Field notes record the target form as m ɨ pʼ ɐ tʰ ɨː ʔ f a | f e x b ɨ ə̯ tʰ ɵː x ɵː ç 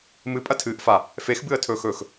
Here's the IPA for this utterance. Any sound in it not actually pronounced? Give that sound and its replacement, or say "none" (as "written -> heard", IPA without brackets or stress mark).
ç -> x